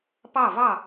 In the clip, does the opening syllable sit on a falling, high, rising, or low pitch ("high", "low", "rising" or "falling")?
falling